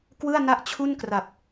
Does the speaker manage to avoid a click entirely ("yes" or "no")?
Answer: yes